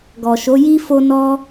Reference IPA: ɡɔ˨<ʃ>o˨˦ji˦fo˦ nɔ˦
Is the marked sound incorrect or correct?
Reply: correct